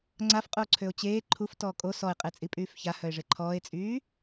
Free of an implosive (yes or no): yes